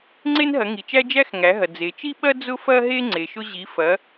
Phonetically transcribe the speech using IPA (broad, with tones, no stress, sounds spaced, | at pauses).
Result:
ŋ͡ǀ e˦ n ɦ ɐ˩˧ ŋ i˩ t͡ʃ æ˦ d͡ʒ æ˦ x ŋ æ˩˧ ɦ ɐ˩ d͡z e˩ t͡ʃ i˦ ɓ ɐ˦ d͡z ʊ˦ f ɐ˦ ɦ e˦ ŋ͡ǀ e˩ ʃ ʊ˦ ʑ i˩˧ f ɐ˩˧